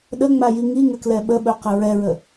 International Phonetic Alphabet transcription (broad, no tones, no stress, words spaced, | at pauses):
ɗəŋ͡maji ŋiŋəklɛ ɓəɓɵqə ɹɛɹə